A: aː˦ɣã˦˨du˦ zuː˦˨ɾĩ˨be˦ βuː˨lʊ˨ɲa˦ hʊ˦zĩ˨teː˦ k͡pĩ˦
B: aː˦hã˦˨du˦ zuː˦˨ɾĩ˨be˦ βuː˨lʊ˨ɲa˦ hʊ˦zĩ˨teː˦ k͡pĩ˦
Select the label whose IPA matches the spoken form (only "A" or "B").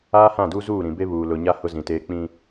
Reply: B